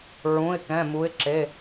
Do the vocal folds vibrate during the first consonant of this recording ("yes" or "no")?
yes